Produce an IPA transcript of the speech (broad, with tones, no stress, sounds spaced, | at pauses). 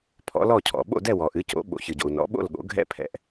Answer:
pʰ ɔ̰˩˥ l ɔ˥˨ cʰ ɔ̰˩ ɓ o̰˥˨ d ɛ˥˨ w ɔ˩ ʔ ɨ˩˥ c o̰˩˥ ɓ o̰˩ ç ɨ˩ ɟ o̰˩ u̯ n ɔ̰˩˥ ɓ o̰˥˨ l ɠ o̰˩˥ ɡʱ ɛ̰˥˨ pʰ ɛ̰˩˥ ʔ